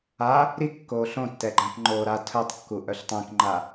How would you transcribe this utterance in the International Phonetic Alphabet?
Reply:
a | ɾ i kː oː ɬ õ tː ɛ ɡ͡ǃ ã p ŋ͡ǃ oː ɾ a tʰ œ tˤ kː u ʔ œ ɬ tˤ ɛ̃ k ŋ͡ǃ a

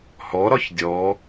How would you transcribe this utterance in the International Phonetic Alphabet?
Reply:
h ɔ ɾ ɒ ç dʲ ɔ

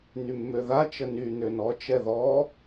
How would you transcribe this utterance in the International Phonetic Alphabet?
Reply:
n y mː ø ð a t͡ʃ ə n y n ø n ɔ t͡ʃ ɛ ð ɔ

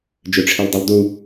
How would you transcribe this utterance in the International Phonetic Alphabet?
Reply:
d͡ʒ ø ʈ͡ʂʰ i lˠ dˤ u lˠ d u

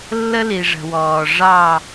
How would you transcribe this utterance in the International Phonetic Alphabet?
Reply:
lː ə˦ l i˨ ʐ ə̤˨ w ɔː˨ ʐ ɑ˦˨

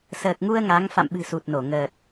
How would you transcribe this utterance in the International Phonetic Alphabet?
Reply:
s əː˨˩ k̚ ŋ u˧ ə̯ ŋ a˨˦ ŋ f a̰˧˨ m ɓ ɨ̤˨˩ s u˨˩ t̚ n o˧˩ ŋ əː˨˩ t̚

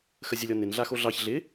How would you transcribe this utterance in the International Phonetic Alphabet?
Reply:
x ə zʲ ə lʲ ɔ n ɪ n ɮ a x o ɮ ɑ ç ɮ ɪ

